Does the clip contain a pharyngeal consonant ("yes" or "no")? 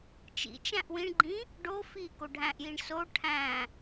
no